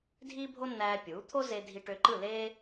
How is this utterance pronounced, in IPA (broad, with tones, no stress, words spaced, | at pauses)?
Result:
dʱiː˥bʱo˥nːæː˧ pʲuː˩˥t̪ʰo˥ze˧ dʱi˧ʈø˧ǃɯ˥˩leː˥